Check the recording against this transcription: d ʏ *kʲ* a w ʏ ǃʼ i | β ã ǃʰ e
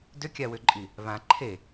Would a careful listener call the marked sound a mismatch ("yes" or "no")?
no